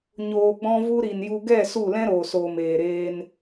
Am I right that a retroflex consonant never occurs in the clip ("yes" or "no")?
yes